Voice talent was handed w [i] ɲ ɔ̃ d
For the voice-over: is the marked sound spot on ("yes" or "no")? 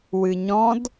no